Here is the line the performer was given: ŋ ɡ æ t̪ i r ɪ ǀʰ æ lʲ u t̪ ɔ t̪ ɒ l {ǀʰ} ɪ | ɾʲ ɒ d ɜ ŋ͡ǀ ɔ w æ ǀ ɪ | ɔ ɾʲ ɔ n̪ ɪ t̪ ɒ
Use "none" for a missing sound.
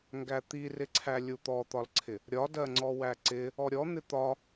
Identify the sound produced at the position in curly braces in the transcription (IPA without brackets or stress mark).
ǀʰ